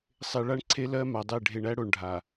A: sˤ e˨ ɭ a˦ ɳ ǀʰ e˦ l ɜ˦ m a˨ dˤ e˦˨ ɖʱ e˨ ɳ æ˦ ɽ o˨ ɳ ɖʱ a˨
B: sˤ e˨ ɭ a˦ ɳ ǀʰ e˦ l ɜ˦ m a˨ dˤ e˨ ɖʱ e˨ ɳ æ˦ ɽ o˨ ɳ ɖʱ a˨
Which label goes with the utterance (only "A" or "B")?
A